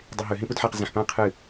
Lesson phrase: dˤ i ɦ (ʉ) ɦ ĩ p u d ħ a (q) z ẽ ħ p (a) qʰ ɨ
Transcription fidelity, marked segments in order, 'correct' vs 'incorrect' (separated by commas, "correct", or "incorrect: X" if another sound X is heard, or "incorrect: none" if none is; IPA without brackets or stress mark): correct, correct, incorrect: ã